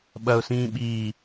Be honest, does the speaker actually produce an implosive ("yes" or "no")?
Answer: yes